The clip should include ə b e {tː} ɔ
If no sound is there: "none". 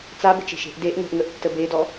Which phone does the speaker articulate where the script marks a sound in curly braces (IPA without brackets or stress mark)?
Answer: d